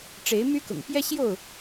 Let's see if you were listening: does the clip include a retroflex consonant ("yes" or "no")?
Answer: yes